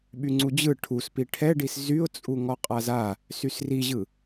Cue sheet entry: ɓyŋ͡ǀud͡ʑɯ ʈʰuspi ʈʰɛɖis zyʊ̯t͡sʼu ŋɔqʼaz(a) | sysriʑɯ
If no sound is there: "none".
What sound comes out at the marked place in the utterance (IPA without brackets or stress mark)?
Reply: a